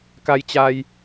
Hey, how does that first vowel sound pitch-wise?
low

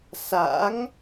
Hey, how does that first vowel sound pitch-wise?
rising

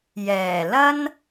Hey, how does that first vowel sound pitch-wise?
low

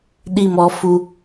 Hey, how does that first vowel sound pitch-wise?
falling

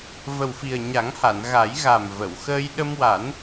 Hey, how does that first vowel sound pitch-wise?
low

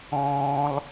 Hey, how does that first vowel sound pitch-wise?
low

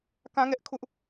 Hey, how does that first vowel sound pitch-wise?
high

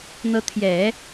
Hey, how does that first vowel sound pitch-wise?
rising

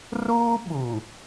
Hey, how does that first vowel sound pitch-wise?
high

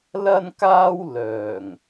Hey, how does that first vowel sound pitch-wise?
high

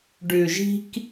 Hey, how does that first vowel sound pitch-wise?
low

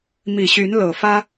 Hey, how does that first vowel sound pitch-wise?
low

